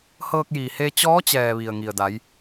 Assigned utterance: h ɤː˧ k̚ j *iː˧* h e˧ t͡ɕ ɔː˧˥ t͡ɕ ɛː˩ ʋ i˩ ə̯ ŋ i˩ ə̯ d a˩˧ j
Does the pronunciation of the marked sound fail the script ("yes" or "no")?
yes